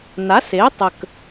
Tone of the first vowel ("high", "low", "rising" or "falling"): rising